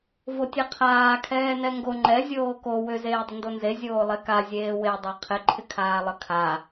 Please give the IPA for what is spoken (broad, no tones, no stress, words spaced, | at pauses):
votʲɛqʰaː kʰɛːnɛŋɡo ŋ͡ǃɛ zʲoːko wʏ zeːdˤɪndonze zʲoːlˠeka zʲeːwe dˤɑqʰɪ ǃʰɪkʰaːlˠəkʰa